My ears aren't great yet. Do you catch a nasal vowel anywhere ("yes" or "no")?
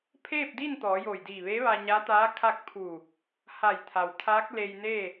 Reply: no